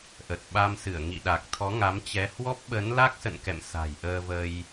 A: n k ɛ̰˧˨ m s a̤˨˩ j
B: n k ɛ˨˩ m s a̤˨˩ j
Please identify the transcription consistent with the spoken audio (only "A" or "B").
A